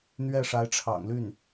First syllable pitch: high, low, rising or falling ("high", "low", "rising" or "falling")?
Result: falling